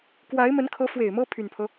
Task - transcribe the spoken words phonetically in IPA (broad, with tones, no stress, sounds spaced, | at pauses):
k w a˧˥ ɪ̯ m ə˧˥ n kʰ ɤ˧˥ f w e˨˩ ɪ̯ m ɤ˥ pʰ y˨˩ n pʰ ɤ˦